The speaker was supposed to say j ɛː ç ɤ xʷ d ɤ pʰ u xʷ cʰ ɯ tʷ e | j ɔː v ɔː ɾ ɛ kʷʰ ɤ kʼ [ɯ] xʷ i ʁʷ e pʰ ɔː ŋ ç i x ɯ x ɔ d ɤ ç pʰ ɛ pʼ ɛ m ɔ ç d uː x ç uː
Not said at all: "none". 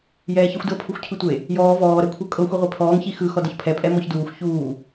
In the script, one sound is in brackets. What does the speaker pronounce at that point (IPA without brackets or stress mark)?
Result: ɤ